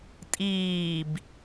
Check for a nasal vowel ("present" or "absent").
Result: absent